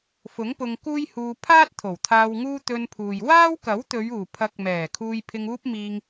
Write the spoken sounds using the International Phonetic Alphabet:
f ʊ˨˥ ŋ p ʊ˧ ŋ k uː˥ j h uː˧ pʰ aː˥ t̚ t̪ʰ o˨˩ w t̪ʰ aː˧ w ŋ uː˥ t̪ ɵ˧ n pʰ uː˨ j w aː˥ w k ɐ˨˥ w t̪ ɵ˨˧ ɥ uː˨˩ pʰ ɐ˨˥ k̚ m ɛː˨˩ kʰ uː˧ j pʰ ɪ˧ ŋ uː˥ p̚ m iː˧ ŋ

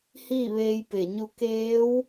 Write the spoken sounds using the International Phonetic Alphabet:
h iː˥˨ ʋ eː˧ j p e˧˩ ɲ u˧ k eː˧˥ w

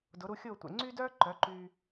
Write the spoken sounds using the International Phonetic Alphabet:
d ʊ˩˥ ɾ u˧ xʲ ʊː˥˩ tʷ ḛ˩ ŋ͡ǀ y˥ d œː˥ ǃ œ˩˥ ǃ yː˧

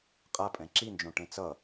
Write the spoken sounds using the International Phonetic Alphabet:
qʼ a pʼ ɛ̃ ǁ i n d͡ʒ õ ʈ ẽ t͡s ʌ

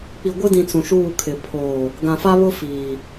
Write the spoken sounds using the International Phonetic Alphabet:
k͡p i˨ ɡʷ ɪ˦ d ĩ˨ t͡s ũ˨ ʃ uː˦˨ kʰ ɪ˨ pʰ oː˨ | ɡ ã˨ f a˦ β ʊ˦ f iː˨

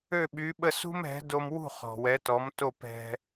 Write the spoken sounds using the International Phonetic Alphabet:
ø˥˩ ɓ y˩˥ ɓ ə˥˩ s ṳ˥ m ɛ̤˩˥ d o˧ m w ṳ˥˩ χ ɔ̤˩ w ɛ˩˥ t ɔ˩˥ m t o˥˩ p ɛ̤˧

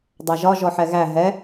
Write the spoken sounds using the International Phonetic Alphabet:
dˤ æ ʒ ɒ ʒ ɔ ħ ɛ ɣ æ ɦ ɛ

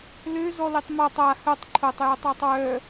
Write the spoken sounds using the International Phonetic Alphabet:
l ø z ɔ l i tˤ m a tˤ a h œ tˤ ǃʰ o tˤ j œ tˤ ɔ tˤ w œ

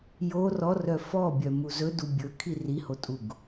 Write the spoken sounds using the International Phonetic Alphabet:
j o r ɔ r œ f ɔ bʲ œ m u z ɵ d u bʲ ɵ kʰ i r i h o tʼ u ɡ

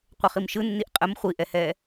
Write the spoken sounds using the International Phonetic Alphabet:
qʷ ə χ i m ʃ ɯ nː i ʔ qʼ ə m χʷ i ʔ ɛ h ɛː

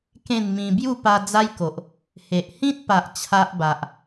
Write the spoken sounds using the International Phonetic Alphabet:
k ẽ˥˧ n m ĩ˧ b j u˥˧ p a˧ d͡z a˦ j k o˨ ʔ | h e˨ ʔ h ĩ˦ t̚ p a˨ ʔ t͡ɕʰ a˦ ʔ b a˨ ʔ

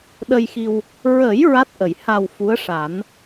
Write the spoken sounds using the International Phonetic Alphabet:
ɗ ə˧ j x i˧ w | ɹ ə˨˩˦ j ɹ a˦˥ t̚ ʔ ə˨˩˨ j h a˨˩ w f u˧˥ ə̯ ʂ a˨˩˦ n

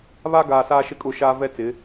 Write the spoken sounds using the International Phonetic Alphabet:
β a˦ ɡ aː˨ s aː˦ ʃ ɪ˦ kʼ ʊ˦˨ ʃ aː˦ v ɛ˦ t͡s ɪ˨˦

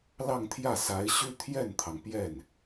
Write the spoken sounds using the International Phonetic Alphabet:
l ɑ˥˧ ŋ t̪ʰ j ä˥˩ s a˧˥ ɪ̯ ɕ y˥ t̪ʰ j ɛ˥˩ n t̪ʰ ɑ˩ ŋ p j ɛ˥˩ n

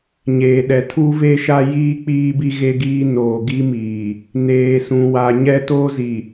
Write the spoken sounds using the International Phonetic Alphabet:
ɲ eː˨ ɗ ɛ˨ tʰ u˦ v e˦ ʃ a˦ j iː˦ k͡p iː˦ b i˦ ɣ e˦ ɡ iː˦ n oː˨ ɡ i˦ m iː˨ | n eː˨ s ũ˨ w a˨ ɲ ɛ˦ t oː˦ z i˨

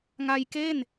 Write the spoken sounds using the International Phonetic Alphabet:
ŋ a˧ j k e˥˩ n

